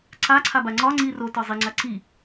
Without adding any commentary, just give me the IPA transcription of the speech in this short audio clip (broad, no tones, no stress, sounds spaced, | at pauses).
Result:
ǀ a ǀʰ a b a ŋ͡ǀ ɒ ŋ͡ǀ i r o t ɒ zˤ i ŋ͡ǀ a ǀ i